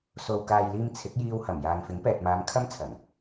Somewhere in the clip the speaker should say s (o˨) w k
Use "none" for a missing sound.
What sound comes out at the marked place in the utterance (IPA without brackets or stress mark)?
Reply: o˨